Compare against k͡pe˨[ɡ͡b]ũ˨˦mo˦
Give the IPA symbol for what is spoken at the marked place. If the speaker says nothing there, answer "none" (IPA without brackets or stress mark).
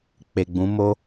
ɡ͡b